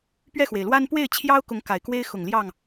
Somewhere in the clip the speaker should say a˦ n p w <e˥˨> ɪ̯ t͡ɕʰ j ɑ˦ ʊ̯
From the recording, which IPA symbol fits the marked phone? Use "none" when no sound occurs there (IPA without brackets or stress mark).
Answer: e˥˨